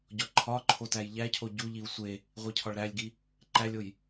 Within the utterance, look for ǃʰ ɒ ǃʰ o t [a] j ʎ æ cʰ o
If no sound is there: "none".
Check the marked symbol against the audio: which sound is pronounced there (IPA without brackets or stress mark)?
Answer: æ